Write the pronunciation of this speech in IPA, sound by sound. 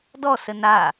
d ɔ s ə n a

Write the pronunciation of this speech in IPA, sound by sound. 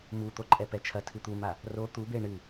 m u t̪ o ǃʼ ɛ p ɛ t͡ʃʰ ɐ tʰ ɨ t̪ u m a | r o t̪ u b e ɳ ɨ

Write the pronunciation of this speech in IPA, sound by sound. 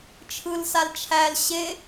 t͡ʃʰ ɯ l s a l t͡ʃʰ æ l ɕ e

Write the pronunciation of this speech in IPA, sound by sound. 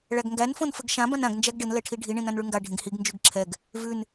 ɭ æ ɡ ŋ ɡ æ n f õ n f ɘ ɡ ʃ ã b ã n ã ɡ n d͡ʒ æ ɡ ɖ ɘ n l ɛ ʈʰ i ɖʱ i ɳ ĩ n ã n ɭ ʉ ŋ ɡ a ɖʱ ĩ ɡ h i ɡ n d͡ʒ ʉ ɡ ǁʰ ɛ ɡ | v ʉ n

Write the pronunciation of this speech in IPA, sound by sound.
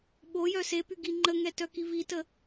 ɓ o j œ s e p y ɡ i ŋ͡ǃ ə ŋ ɛ t œ k i v i t ə

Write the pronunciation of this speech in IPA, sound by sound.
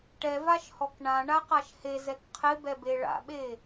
ʈ ɛ v a ʃ h ɔ k ɳ ã ɳ a q a ʃ h e z ɛ k qʰ ɪ b ɛ b e ɭ a̰ ɓ e

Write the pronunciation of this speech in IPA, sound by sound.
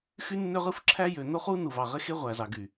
x y˦ nː ø˦ ʁ ɯ˦ f ǁʰ æ˦ j ø˨ n o˦ χ u˦ n u˨ v ɑ˨ ʁ e˦ x e˦ ʁʷ æ˨ z ɑ˨ ɡ y˨

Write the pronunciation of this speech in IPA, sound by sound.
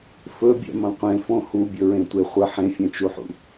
f ɵ bʲ ɛ̰ m ɐ̃ qʷ ẽ f õ h u bʲ ɵ ɹ ẽ tʷ e χʷ ə ħ ẽ fʲ ɛ̃ t͡ʃ u ħ ṵ

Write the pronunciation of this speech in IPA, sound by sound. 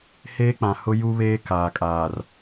h eː˦ k͡p ã˨ h ʊ˦ j u˦ β eː˦ k aː˨ kʼ aː˨ r

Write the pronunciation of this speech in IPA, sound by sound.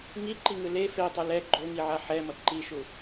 ŋ i ǃ i ŋ ɯ l e f e tˤ ɯ l ɛ ɡ͡ǃ o ŋ i ʕ a ħ ɛ m ʌ ǃ i ʃ u

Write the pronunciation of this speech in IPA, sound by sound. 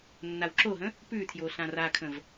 nː a w ǁ o ɦ ə̃ | p ʉ tʰ j o ɬ ã r a kʰ ə̃ v

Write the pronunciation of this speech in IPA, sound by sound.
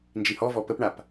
n d͡ʒ i h ɔ v ɔ p ə p ɳ a p

